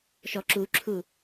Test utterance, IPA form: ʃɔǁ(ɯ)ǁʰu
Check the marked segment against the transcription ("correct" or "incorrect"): incorrect